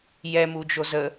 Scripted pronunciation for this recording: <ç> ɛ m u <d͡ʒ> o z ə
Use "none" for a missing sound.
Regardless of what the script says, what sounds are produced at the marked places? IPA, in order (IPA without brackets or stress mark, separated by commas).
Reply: j, d͡ʒ